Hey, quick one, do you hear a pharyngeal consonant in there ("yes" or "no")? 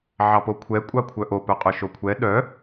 yes